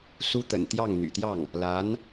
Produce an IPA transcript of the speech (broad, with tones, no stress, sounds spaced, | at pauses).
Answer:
s u˥ t̪ ə̰˨˩ n t̪ j ɑ˥˩ ŋ n̪ y̰˨˩ t̪ j ɑ˥˩ ŋ | l a˧˥ n